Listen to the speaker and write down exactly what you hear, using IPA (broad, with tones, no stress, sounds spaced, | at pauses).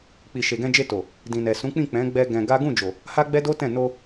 k͡p i˨ ʃ e˨ ɡ ɛ̃˧ d͡ʒ e˧ t o˨ | d ĩ˨ n ɛ˨ s ũ˨˦ k͡p ĩ˦˨ k͡p ɛ̃˨˦ ɡ͡b ɛ˧ ɡ ɛ̃˧ ɡ a˦ ɡ ũ˦˨ d͡ʒ o˨ | h a˦ ɡ͡b ɛ˦ d o˦ t ɛ̃˦˨ n o˧